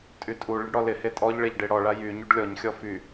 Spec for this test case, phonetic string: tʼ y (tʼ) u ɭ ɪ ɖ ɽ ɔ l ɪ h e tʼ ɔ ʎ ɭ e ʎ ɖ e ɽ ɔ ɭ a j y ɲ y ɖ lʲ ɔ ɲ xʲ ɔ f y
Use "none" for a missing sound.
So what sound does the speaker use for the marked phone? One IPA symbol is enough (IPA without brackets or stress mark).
tʼ